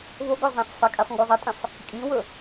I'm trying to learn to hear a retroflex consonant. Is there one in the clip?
no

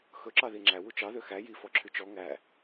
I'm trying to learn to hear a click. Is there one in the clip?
yes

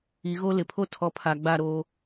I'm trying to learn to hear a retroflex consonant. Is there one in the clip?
no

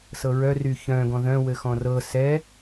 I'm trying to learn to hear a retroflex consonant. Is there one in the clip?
no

